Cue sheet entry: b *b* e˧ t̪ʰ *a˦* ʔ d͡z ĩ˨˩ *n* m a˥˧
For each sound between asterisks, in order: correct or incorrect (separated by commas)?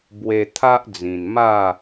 incorrect, correct, correct